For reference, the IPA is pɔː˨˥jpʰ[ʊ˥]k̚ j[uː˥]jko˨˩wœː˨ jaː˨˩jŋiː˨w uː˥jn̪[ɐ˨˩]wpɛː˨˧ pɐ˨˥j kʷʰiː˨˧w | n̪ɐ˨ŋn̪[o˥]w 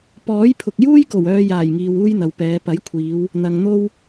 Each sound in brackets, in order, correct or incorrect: incorrect: ʊ˨, correct, incorrect: ɐ˨, correct

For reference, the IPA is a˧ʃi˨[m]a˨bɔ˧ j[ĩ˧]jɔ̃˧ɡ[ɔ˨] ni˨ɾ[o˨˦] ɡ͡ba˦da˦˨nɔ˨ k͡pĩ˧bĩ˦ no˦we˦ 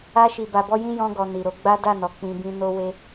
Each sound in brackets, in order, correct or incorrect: incorrect: b, incorrect: ĩ˦, correct, correct

